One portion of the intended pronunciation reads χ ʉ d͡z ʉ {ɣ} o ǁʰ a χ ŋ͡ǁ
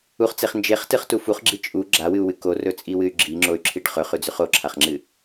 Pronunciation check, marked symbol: incorrect: χ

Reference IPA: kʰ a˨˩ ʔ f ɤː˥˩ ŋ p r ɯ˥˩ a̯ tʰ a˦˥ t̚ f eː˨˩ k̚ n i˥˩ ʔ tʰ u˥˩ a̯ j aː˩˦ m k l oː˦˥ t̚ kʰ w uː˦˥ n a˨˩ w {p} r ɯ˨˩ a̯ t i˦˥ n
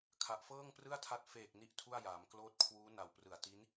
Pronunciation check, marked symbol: correct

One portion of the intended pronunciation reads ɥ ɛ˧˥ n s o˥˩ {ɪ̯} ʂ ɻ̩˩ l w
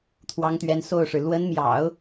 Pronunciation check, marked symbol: incorrect: ʊ̯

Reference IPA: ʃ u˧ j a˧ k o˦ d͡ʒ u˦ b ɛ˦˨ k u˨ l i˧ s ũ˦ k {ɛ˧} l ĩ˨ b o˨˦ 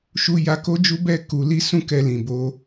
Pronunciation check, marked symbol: correct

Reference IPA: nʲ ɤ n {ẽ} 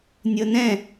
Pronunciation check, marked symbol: incorrect: ɛ̃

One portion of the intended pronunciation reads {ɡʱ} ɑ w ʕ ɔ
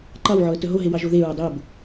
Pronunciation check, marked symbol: incorrect: ǃ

